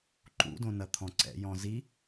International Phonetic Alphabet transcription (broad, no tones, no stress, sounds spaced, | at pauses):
ǃ ṵ d õ n ɐ t̪ʰ ɔ̃ ǀ ɛ̰ j ɔ̃ z i